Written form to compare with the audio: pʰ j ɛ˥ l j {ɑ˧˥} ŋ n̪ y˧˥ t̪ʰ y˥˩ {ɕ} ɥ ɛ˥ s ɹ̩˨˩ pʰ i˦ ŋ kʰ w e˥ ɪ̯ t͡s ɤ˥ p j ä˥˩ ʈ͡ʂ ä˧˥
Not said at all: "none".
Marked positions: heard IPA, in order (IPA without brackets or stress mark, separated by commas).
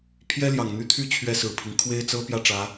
ɑ˨˩, t͡ɕʰ